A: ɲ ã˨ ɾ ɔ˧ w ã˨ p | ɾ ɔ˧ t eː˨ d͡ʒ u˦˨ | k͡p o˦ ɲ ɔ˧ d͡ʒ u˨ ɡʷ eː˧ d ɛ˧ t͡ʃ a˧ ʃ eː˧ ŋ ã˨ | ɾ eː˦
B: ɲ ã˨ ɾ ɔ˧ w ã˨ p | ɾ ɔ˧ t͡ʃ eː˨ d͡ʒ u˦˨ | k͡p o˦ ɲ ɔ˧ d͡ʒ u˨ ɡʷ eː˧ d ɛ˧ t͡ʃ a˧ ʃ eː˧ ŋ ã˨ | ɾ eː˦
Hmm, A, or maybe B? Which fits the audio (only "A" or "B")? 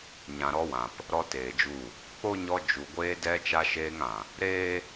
A